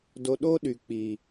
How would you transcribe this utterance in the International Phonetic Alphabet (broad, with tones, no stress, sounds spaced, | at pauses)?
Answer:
d o˨ ɗ o˦ ɗ y˨ k͡p i˨